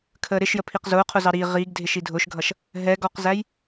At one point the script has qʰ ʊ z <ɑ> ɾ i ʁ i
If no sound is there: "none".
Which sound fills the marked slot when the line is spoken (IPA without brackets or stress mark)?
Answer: ɑ